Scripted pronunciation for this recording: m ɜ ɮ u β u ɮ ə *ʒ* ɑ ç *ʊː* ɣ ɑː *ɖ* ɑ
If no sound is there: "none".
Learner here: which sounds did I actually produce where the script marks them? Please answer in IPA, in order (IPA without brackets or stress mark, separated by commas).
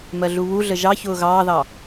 ʒ, ʊː, ð